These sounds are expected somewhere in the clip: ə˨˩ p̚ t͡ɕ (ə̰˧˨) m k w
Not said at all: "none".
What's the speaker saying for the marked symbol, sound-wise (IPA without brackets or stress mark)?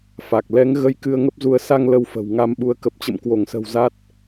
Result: ə̰˧˨